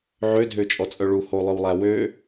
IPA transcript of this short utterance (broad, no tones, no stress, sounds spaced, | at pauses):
ʕ ø dʱ ø t͡ʃʼ ɔ t͡sʼ œ ɭ u h o lˠ œ w lˠ æ w ø